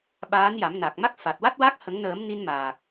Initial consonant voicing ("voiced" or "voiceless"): voiced